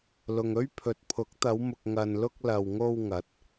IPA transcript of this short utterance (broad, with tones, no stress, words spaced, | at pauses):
lʊ˨ŋ ɵ˥ɥ pʰɵ˨t̚pʰʊ˨˥k̚t̪ɐ˨˧wmʊ˨k̚ ŋɐ˨nlʊ˧k̚ lɐ˨wŋo˧w ŋɐ˨˥t̚